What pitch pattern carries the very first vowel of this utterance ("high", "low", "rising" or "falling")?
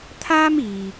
high